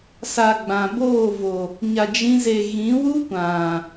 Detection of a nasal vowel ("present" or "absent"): present